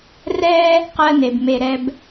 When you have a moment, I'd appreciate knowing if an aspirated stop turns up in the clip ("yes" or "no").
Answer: no